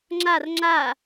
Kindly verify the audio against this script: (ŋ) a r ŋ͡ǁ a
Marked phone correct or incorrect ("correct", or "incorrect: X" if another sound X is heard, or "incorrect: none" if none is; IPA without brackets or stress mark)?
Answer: incorrect: ŋ͡ǁ